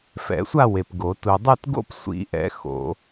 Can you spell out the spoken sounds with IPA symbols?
f ɛ̰˨˩˦ sʷ a˥˧ w e˨ p ɡ o˨˩˦ t u˨ dˤ ɯ˥˧ t ɡ o̰˥˧ p sʷ ḭ˨˩˦ ʔ ɛ̰˨˩˦ x o̰˨˩˦

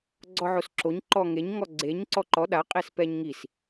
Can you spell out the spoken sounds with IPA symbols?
ɡ͡ǀ ɔ ʕ o s ǁ o ɲ ǃ ɔ ŋ e ɲ ŋ ɔ ɡ͡ǀ e ɲ ǀ ɔ ǃ ɔ ɗ a qʼ e s p ɛ ɲ ŋ i s

